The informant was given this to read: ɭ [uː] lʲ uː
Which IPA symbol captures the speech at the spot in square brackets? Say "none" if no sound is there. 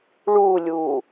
uː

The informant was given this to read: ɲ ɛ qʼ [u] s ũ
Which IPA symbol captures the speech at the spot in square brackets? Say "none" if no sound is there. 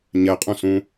ũ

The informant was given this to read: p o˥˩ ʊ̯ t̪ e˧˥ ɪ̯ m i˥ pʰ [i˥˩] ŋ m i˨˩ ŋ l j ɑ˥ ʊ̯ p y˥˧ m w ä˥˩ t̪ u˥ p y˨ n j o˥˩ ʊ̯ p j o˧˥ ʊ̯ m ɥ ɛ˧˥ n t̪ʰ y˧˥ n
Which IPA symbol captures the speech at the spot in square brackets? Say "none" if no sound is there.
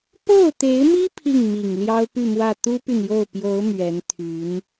i˥˩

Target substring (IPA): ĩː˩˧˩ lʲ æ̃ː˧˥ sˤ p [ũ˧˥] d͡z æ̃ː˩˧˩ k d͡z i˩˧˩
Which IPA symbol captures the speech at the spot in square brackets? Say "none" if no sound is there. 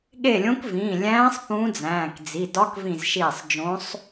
ũ˧˥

